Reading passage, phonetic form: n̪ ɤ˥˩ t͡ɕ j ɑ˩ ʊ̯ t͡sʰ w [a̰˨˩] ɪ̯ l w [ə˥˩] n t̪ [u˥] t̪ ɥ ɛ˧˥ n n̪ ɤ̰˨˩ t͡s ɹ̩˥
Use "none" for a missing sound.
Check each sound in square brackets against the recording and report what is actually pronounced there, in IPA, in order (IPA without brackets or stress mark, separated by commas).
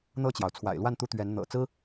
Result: a̰˨˩, a˥˩, u˥